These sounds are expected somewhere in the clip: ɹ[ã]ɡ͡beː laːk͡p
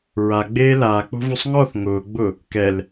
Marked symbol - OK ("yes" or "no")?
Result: no